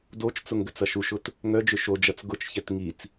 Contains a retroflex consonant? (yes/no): no